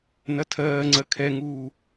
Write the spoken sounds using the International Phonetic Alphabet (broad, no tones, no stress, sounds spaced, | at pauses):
n ɐ tʰ ɜː ŋ͡ǀ ɜ kʰ ɛ ŋ uː